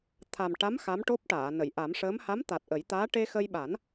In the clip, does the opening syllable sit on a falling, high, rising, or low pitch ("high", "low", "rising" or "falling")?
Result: low